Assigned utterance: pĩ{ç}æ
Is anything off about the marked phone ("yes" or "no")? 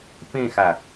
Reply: yes